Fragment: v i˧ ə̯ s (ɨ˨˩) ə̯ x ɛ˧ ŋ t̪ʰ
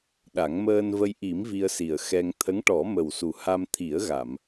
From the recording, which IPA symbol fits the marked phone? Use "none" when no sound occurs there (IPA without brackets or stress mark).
i˨˩